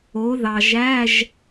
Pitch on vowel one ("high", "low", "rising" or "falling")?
rising